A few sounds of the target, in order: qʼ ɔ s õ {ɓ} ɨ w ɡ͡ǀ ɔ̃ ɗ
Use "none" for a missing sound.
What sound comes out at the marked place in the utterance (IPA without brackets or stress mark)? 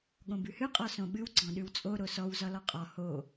ɓ